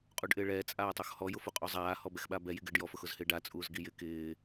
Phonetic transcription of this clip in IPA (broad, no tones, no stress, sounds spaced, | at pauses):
qʼ u ɖ ʔ ɪː ɭ ɛː t͡sʼ aː tˤ o x h ɔ j ʊ f u qʼ o zˤ aː h ɔ b ɛ x ɓ a b ɛ j i ɡ ɪː ɖ j ɔ f ʊ x ʊ z h ɪː ɖ a t͡sʼ uː z ɡ i j ɪ k ɪː